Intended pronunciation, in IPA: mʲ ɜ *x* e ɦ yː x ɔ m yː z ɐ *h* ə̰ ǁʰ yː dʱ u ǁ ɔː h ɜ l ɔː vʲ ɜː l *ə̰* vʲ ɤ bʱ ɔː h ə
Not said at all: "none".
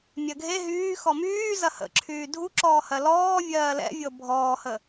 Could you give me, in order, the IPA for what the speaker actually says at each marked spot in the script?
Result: ɡʱ, h, ɛ̰

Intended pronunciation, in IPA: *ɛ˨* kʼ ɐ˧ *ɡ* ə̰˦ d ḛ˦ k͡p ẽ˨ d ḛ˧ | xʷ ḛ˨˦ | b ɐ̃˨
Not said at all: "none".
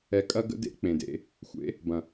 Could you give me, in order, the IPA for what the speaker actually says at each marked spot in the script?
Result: ɛ˨, ɡ

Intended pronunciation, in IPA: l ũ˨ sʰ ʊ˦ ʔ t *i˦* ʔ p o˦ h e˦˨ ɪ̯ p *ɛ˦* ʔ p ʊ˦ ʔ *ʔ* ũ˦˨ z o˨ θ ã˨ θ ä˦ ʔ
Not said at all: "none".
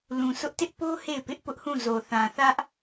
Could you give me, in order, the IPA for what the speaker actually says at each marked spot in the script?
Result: ɪ˦, ɪ˦, h

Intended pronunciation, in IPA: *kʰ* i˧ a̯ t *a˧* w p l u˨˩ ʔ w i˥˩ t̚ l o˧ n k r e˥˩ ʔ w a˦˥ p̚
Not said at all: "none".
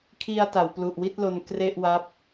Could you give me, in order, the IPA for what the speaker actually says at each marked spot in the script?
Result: kʰ, a˩˦

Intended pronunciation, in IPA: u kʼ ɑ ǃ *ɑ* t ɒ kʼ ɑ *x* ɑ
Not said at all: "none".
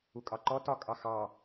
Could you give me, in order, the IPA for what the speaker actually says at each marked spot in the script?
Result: ɔ, x

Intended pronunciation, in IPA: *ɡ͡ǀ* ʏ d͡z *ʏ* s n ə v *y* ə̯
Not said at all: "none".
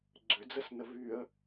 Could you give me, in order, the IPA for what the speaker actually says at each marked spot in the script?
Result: ɡ͡ǀ, ə, y

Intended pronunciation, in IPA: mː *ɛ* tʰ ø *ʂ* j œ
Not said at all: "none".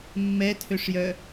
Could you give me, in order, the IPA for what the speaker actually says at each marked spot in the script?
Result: ɛ, ʂ

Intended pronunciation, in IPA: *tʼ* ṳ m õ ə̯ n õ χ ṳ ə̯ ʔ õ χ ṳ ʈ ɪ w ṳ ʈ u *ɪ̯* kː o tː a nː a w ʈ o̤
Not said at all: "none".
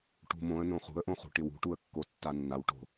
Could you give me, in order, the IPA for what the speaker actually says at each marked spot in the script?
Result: ʈ, ə̯

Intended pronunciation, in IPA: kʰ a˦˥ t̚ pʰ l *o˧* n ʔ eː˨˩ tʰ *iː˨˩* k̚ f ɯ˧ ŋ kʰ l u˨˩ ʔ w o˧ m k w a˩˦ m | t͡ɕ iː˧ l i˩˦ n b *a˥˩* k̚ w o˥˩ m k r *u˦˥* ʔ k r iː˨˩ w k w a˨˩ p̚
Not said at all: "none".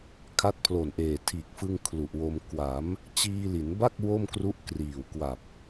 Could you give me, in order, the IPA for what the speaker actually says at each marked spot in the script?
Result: o˨˩, iː˨˩, a˥˩, u˦˥

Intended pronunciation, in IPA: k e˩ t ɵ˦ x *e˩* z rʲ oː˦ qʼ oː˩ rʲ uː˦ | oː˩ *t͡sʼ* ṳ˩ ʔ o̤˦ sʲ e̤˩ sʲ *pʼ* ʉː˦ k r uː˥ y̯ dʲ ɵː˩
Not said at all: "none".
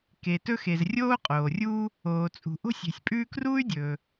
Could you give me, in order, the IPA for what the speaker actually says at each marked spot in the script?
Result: e˩, t͡sʼ, pʼ

